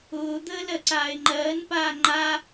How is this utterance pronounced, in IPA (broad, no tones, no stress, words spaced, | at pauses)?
ʊːd̪əː lɜǀaːɪ̯ŋ͡ǃɜːn paːŋ͡ǃa